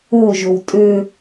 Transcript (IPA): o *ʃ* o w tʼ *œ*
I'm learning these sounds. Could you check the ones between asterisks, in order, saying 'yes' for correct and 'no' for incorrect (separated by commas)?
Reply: no, no